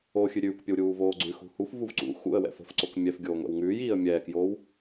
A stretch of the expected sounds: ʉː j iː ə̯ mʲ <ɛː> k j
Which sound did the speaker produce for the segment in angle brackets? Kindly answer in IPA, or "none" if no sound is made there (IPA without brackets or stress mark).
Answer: ɛː